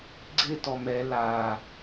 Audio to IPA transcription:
ɡ͡ǀ ɪ t ɔ m ɛ l a

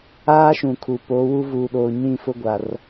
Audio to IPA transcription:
aː˦ ʃ ũ˨ kʰ u˨ p o˨˦ w u˦ v uː˨ ɗ oː˨ ɲ ĩ˦˨ f ʊ˦ ɡʷ a˨ r

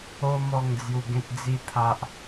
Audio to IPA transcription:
o˦ m ɔ˥˧ ŋ d͡z j u˧ ɡ ẽ˦ t̚ d͡z i˦ t̪ʰ a˦ ʔ

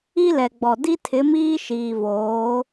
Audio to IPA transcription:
i˦ l ɛ˨ ɡ͡b ɔ˨ d i˦ tʰ ɪ˨˦ m iː˦ ʃ iː˨ v oː˨˦

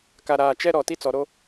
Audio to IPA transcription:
k a˨ ɾ aː˨ t͡ʃ ɛ˦ ɾ ɔ˨ t i˦ t͡s ɔ˨ ɾ o˦

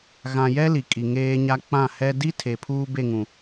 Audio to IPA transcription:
ɣ ã˨ j ɛ˦ l i˨ kʼ i˨ ŋ eː˦ ɲ a˦ k͡p ã˦˨ h ɛ˦ d i˦ tʰ e˨ pʰ uː˦ b e˦˨ ŋ ũ˨

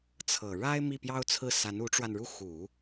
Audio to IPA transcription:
t͡sʰ ɤ˨˩ ɻ a˥ ɪ̯ m i˥˩ p j ɑ˥ ʊ̯ t͡sʰ ɹ̩˥˩ s a˧˥ n u˧˥ ʈ͡ʂ w a˧ n ɻ u˥˩ x u˨˩˦

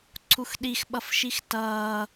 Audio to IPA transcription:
ǀʰ u x ɗ i x ɓ ʌ f ʃ i x t ʌː

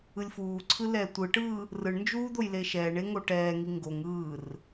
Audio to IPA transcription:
ɯ lʲ f uː ǀʰ ɯ l ɛː tʷ ɯ ʈ ɯː | r ɯ ɳ n d͡ʒ uː d̪ o j l e ʃ ɛː ɳ e ŋ o ʈ ɛː ŋ i ŋ ɡ o ŋ ɯː r

